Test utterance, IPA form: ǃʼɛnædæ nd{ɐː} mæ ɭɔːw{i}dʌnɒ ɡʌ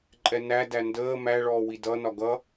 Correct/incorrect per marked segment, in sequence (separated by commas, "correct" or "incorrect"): incorrect, correct